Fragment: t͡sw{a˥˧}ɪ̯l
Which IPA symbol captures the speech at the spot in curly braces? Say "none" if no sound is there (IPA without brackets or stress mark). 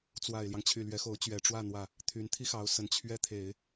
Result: a˨˩